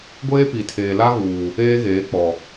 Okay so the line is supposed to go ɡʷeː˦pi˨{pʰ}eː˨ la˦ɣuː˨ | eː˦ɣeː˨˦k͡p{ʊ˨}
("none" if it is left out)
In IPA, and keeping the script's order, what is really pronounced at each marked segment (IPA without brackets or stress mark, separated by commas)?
tʰ, ɔ˨